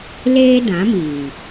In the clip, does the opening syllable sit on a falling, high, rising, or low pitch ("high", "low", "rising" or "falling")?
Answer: high